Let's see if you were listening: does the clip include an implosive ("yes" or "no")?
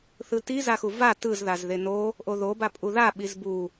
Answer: yes